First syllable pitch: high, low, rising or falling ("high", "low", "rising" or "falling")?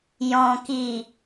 low